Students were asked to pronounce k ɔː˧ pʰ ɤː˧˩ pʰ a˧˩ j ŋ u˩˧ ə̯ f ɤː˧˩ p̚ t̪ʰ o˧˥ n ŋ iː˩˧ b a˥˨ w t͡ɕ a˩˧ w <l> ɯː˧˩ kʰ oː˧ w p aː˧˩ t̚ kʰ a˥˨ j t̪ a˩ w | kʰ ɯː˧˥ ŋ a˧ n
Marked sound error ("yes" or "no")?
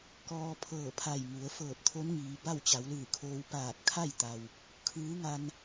no